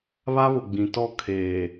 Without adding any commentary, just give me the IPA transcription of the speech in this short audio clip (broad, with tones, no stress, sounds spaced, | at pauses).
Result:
β a˦ β ʊ˨ ɡ͡b ĩ˨ t ɔ˦˨ kʰ eː˨